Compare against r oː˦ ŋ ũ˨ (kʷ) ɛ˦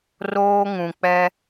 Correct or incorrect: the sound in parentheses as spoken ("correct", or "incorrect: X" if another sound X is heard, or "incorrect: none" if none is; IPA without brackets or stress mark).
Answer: incorrect: k͡p